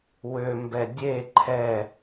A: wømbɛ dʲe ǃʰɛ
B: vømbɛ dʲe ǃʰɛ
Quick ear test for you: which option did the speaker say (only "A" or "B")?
A